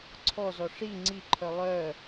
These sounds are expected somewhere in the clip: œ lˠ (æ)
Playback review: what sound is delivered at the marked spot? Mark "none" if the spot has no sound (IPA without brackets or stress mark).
œ